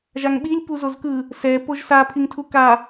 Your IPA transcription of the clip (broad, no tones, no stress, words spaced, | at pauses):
ʒaŋɓilʲ puzozkɯ | sɛ poʒsa pʰiŋtʰuka